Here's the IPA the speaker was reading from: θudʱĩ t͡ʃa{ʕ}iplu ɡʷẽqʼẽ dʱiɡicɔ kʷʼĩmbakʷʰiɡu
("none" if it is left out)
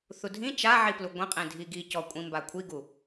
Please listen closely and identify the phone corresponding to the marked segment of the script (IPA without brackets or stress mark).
ʕ